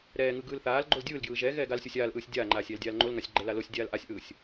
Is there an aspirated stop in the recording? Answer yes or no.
no